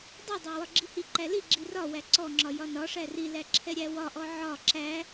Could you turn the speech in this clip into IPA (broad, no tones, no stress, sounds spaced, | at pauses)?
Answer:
dˤ i dˤ æ w ɒ ɡ͡ǁ i h i ǃ æ l i ɡ͡ǁ i r ɒ w æ ǀ ɔ ŋ͡ǁ ɒ j ɒ n ɒ ʂ æ r i l æ ǁʰ ɛ ɾʲ æ w ɒ ʔ ɔ ʕ ɒ ǁ æ